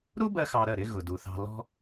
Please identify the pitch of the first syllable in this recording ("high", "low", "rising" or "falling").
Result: high